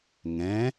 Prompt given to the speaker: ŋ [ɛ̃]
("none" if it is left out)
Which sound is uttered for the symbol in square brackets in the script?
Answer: ɛ̃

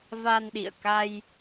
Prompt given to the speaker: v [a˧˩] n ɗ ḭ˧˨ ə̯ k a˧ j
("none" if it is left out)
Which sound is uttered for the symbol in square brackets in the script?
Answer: a˧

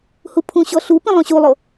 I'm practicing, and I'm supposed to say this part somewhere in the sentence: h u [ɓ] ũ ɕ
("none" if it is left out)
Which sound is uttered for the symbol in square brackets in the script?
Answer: pʰ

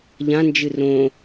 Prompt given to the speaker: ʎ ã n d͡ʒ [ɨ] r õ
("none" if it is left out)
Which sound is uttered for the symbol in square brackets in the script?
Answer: ɨ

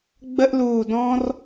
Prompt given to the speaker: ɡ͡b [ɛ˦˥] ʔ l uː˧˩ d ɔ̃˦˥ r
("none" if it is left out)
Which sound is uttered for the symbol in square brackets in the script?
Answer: ə˦˥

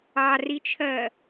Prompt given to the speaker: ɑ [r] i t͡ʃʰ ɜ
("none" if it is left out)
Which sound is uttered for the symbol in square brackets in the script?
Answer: r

